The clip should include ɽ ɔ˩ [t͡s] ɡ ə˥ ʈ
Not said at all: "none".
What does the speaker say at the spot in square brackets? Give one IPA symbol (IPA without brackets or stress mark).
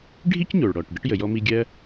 ʈ